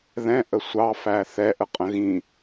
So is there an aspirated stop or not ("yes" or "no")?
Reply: no